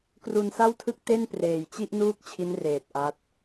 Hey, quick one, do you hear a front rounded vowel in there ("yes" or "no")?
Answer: no